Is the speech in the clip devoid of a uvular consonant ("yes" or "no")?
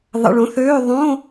yes